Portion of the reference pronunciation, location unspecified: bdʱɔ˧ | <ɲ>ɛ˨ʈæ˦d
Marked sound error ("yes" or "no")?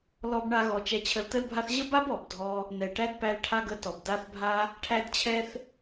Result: yes